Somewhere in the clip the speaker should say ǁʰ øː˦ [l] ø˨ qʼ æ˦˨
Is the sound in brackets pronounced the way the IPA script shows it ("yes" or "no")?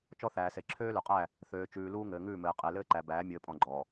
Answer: yes